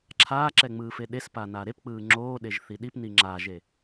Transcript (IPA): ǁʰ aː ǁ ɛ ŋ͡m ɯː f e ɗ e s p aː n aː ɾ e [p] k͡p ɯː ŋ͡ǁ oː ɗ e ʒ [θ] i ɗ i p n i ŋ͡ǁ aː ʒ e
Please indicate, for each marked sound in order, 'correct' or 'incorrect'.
correct, correct

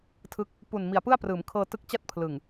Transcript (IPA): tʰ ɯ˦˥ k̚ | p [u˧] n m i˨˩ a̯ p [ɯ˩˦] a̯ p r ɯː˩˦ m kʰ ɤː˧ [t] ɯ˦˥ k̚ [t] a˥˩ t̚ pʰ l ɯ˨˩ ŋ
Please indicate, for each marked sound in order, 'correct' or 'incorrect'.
incorrect: u˨˩, incorrect: ɯ˥˩, correct, incorrect: t͡ɕ

